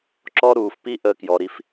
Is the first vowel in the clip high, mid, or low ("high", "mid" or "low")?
mid